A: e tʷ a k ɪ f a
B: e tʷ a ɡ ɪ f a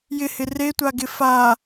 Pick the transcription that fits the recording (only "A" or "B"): B